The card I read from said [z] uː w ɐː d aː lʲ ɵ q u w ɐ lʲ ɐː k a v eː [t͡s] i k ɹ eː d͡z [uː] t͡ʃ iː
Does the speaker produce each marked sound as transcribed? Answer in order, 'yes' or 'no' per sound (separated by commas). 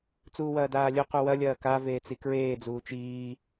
no, yes, yes